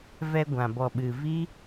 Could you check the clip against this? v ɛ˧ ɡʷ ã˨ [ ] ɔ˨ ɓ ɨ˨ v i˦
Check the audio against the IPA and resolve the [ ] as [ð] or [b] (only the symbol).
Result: b